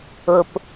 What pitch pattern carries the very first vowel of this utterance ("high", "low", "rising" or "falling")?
low